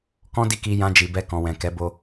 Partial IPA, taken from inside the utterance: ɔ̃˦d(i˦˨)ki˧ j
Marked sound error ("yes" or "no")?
no